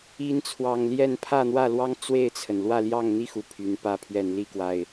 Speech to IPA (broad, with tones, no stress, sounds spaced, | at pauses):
i˨˦ n t͡sʰ w ɑ˨˩ ŋ l j ɛ˥˨ n pʰ ä˥˨ n̪ w ä˥˨ l w ɑ˦ ŋ t͡s w e˥˨ ɪ̯ t͡sʰ ə˩ n l w ä˥˨ l j ɑ˥˨ ŋ n̪ i˥˨ x u˩ pʰ y˨˦ n p ä˥˨ pʰ ɥ ɛ˥˨ n l i˥˨ k w a˨˩ ɪ̯